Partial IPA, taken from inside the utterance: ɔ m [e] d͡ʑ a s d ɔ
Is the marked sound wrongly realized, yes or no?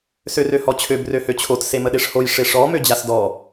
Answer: yes